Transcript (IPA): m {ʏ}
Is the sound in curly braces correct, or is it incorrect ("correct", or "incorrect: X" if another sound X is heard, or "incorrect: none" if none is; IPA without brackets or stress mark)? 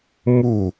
incorrect: u